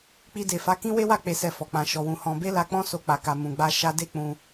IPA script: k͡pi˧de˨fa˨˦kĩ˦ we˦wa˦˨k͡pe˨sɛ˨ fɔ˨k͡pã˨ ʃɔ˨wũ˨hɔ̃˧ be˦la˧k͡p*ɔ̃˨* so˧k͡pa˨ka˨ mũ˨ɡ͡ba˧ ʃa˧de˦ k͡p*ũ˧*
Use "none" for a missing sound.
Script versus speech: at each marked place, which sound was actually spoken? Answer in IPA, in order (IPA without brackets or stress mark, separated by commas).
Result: ɔ̃˦, ũ˧